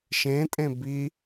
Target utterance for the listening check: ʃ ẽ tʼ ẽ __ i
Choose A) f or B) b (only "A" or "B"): B